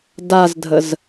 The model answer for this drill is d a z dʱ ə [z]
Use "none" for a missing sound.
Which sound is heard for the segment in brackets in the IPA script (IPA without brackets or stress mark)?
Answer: z